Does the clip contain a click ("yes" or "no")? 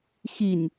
no